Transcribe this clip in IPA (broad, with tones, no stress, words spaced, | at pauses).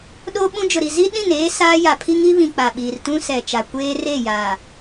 ɗoː˦ɓũ˦d͡ʒʊ˨ ɾi˨zi˦ɗĩ˦˨n eː˦ saː˦ja˨ pʰi˦ŋi˦βĩ˨ k͡pa˨ɓiː˨r tũ˦sɛ˨t͡ʃa˨ kʷeː˦re˦˨ jaː˨